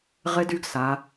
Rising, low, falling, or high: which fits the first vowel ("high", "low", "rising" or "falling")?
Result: rising